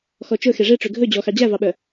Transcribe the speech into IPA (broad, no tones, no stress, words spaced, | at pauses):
xɔt͡ʃɵ xeʐe ʈ͡ʂøɡʱɵ d͡ʑɔxɑ d͡ʑævɑɓœ